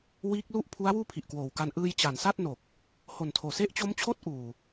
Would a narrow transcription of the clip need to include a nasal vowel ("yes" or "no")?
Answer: no